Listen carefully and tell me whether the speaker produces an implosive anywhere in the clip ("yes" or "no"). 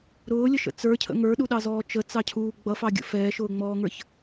yes